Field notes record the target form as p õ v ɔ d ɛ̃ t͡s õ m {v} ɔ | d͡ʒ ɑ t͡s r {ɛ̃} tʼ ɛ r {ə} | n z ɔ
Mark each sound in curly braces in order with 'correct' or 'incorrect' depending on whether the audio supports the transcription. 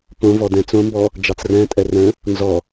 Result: incorrect, correct, incorrect

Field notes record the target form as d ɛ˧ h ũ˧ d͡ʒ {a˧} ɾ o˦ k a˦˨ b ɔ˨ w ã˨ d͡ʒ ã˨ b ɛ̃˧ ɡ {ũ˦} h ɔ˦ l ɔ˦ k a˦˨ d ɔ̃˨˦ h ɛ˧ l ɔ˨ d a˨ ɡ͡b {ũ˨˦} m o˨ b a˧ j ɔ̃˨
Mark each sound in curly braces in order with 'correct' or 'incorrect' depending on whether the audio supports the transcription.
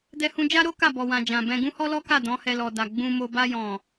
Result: incorrect, correct, incorrect

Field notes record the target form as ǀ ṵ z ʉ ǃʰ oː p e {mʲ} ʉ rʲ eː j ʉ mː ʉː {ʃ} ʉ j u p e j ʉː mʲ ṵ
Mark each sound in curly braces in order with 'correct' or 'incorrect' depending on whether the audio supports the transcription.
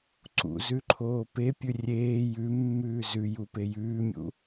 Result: incorrect, incorrect

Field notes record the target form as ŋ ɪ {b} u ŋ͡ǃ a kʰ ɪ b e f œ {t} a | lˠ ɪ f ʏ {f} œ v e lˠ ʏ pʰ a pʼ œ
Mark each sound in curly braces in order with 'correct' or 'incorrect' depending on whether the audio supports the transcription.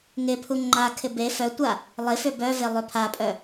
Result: incorrect, incorrect, incorrect

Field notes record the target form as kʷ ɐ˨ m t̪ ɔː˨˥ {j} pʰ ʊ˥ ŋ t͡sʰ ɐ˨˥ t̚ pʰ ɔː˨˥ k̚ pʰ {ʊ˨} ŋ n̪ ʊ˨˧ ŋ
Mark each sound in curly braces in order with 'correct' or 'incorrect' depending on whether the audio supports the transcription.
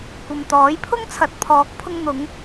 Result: correct, incorrect

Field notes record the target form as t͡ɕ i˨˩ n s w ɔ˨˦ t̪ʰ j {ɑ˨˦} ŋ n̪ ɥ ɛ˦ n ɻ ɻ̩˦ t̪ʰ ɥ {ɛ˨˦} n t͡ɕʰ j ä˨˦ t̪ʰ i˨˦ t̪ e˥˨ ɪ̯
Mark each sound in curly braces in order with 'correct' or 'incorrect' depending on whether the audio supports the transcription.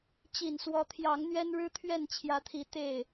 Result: correct, incorrect

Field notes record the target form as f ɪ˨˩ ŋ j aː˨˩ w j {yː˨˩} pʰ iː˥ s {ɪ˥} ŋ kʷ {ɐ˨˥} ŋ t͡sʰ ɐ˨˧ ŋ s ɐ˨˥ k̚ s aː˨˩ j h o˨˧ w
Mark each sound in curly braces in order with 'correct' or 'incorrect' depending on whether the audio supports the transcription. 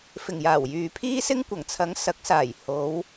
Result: incorrect, correct, incorrect

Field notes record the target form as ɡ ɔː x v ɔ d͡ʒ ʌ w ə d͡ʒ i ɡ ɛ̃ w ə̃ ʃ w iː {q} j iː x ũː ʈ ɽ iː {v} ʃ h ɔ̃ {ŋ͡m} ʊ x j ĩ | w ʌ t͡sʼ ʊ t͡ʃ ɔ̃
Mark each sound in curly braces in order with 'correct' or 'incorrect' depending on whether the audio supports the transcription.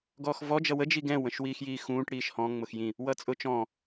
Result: incorrect, incorrect, correct

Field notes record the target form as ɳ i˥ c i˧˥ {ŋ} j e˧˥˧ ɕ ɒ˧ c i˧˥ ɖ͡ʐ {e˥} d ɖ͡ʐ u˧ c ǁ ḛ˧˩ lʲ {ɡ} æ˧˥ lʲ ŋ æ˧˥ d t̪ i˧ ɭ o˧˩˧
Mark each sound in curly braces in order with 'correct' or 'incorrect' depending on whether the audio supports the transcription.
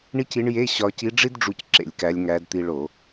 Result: incorrect, incorrect, incorrect

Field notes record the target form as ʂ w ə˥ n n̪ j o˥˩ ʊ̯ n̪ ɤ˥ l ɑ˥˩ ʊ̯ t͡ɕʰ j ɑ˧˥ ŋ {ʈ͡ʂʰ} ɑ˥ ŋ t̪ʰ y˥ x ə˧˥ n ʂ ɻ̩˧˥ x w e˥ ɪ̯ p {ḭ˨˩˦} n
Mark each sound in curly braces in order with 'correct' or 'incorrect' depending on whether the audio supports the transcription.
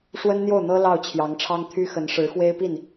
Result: correct, incorrect

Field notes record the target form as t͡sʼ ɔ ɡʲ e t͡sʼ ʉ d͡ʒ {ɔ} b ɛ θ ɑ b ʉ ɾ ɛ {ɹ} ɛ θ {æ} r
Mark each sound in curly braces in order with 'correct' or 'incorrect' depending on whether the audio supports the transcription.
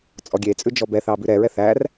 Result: correct, correct, correct

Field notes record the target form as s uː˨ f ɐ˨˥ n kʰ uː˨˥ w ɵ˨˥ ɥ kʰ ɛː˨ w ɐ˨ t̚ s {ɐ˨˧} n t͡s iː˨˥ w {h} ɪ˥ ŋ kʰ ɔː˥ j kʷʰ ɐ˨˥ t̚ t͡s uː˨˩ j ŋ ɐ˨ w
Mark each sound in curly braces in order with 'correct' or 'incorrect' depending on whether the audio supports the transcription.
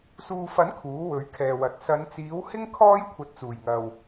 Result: correct, correct

